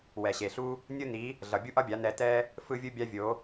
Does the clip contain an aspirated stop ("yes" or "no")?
no